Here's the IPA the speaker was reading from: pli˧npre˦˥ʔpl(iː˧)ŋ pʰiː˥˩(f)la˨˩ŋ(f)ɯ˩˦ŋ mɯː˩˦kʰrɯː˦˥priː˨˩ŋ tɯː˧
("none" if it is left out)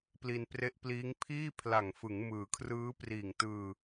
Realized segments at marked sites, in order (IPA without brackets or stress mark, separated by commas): iː˦˥, pʰ, f